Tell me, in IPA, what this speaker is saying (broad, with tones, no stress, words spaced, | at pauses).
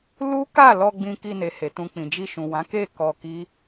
lu˦ ka˦˨lɔ˧ ɡ͡bĩ˧ki˧ne˨he˨ tũ˨ k͡pĩ˨d͡ʒi˧ʃũ˨wã˨˦ ke˦˨ kɔ˧ki˦